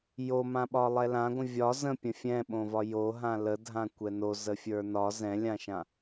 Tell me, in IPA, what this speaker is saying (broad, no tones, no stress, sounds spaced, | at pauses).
j o m ã ɓ ɒ lˠ ɛ l ã ɡʷ ə̃ vʲ ɒ z ə̃ pʲ ə̃ fʲ ɛ̃ ɓ õ v ɒ j o ɦ ã l ə dʱ ã kʷ ɛ n o z ə fʲ ə˞ n ɒ z ɛ̃ lʲ ã ʃ ã